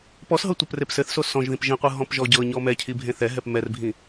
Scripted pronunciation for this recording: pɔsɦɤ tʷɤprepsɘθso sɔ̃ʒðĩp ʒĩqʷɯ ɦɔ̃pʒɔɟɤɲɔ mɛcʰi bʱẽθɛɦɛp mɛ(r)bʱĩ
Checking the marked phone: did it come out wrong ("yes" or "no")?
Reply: no